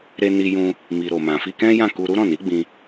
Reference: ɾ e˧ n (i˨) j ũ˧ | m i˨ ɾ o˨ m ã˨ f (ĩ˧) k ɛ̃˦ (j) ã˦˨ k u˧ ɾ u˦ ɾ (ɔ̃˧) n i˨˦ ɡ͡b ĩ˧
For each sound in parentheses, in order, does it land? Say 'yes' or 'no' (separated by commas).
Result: no, no, yes, no